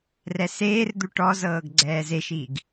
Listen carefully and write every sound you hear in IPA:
r ɛ s eː r d̪ u ʈ ɔ z ɤː ɡ ɡ͡ǀ ɛː z e ʃ i ɡ

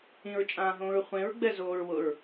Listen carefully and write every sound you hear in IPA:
ĩ ɹ t͡ʃʼ ãː ɦ õː ɹ χʷ ẽ ɹ ɡ͡b ɛ z oː ɹ w ʊ ɹ

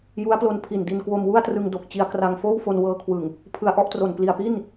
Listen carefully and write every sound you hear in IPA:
j u˦˥ a̯ p l o˧ n pʰ i˨˩ n d i˧ n k w o˧ m w u˥˩ a̯ t r ɯ˧ ŋ d o˨˩ k̚ t͡ɕ i˧ a̯ k r a˧ ŋ f oː˥˩ w f o˧ n w ɤː˧ kʰ w ɯ˨˩ ŋ | pʰ ɯ˧ a̯ ʔ ɔ˥˩ ʔ t r o˨˩ n p l i˨˩ a̯ p i˥˩ n

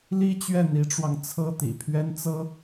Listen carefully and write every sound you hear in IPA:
l i˥ t͡ɕ ɥ ɛ˥˩ n̪ i˧˥ ʈ͡ʂ w ɑ˧ ŋ t͡sʰ ɤ˥ t̪ ḭ˨˩ pʰ ɥ ɛ˥ n t͡s ɤ˥

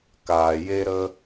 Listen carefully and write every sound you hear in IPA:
k aː˨ j e˦ ɾ ə˦

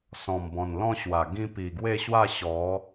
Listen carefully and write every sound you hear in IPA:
s ɔ̃˨˩ m b ɔ̃˨˩ n l ɔ̃˥˧ ɕ w a˨˩ ɡ ĩ˧ p i˨˩ ɡ w e˥˧ ɕ w a˥˧ ɕ ɔ˨˦

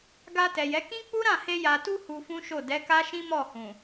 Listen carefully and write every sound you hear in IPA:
ɡ a˧ t ɛ˨ j ɛ˨˦ k ĩ˦ k͡p u˦ ɾ ã˦˨ h e˧ j a˨ t u˧ h u˧ f ũ˦ ʃ o˦˨ d ɛ˨˦ k a˦ ʃ ĩ˦ m ɔ˦˨ h ũ˨

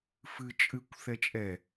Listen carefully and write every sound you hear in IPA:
f ɨ t͡ʃʼ ɨ kʷ θ ɛ t͡ʃʼ ɛ

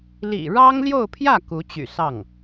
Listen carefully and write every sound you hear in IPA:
l ḭ˨˩ ɻ ɑ˥ ŋ l j o˥˧ ʊ̯ pʰ j ä˥˩ k u˧˥ t͡ɕ y̰˨˩ s ɑ˥˩ ŋ

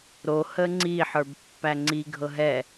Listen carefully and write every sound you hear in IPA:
ɾ o h ə ŋ͡ǀ i ħ ə˞ b pː æ ŋ͡ǀ i ɡʱ ɤ ɦ ɛ

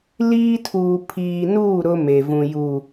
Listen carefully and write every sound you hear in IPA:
l iː˦ tʰ uː˨ pʰ iː˨ n uː˦˨ ɾ ʊ˦ m e˨ v ũ˨ j u˨

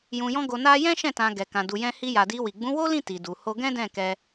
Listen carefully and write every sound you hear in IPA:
j ũ˧ j ɔ̃˦ ɡ o˧ n a˦ j ɛ̃˦ ʃ ɛ̃˦˨ t ã˧ ɡ ɛ˨ k ã˨ d u˧ j ɛ̃˦ h i˦ j a˧ d i˧ w i˨ ɡ͡b ũ˨˦ w o˦ l ĩ˦˨ t i˨ d u˨ h o˧ ɡ ɛ̃˦ d ɛ̃˦˨ k ɛ˧

